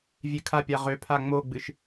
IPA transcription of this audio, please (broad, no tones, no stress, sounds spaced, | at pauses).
vʲ e kʰ a pʲ a ʁ ø pʰ a ŋ͡m o ɡ͡b ɨ ʃ